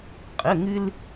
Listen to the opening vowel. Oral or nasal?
oral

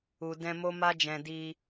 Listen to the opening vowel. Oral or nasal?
oral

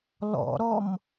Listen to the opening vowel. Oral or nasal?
oral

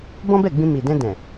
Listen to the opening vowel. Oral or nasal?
nasal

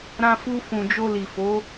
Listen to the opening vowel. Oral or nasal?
nasal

